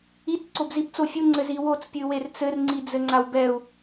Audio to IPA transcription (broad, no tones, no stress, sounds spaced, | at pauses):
i t ǀ o b z i b t͡s o fʲ u ŋ͡ǀ ɘ z i w o t͡s pʲ ɨ w e r t͡s ɘ r ŋ͡ǀ i d͡z ɘ ŋ͡ǀ a w b ɛ u̯